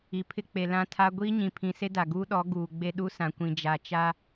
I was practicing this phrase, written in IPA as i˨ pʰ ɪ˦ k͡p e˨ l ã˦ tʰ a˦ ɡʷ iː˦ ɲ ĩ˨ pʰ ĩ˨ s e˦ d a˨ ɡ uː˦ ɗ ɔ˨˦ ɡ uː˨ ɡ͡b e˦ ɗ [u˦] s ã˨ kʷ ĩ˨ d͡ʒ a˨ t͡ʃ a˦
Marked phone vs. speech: correct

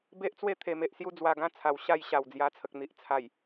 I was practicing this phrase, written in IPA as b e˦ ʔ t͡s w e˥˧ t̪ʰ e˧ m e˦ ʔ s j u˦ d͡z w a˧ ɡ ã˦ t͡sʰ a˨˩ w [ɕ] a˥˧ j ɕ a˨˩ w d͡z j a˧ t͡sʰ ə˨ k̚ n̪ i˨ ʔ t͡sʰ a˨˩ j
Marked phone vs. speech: correct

